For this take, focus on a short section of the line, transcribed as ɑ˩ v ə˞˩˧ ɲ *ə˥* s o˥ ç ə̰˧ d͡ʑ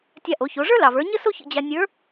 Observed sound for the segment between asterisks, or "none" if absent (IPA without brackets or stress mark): ə˥